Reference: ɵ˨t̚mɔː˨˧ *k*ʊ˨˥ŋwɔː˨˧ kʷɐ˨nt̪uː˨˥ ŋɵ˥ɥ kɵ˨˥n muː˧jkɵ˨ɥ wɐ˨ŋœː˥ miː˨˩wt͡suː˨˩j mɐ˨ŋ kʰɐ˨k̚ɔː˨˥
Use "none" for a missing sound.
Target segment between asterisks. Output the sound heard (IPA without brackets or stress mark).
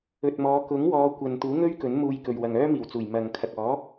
k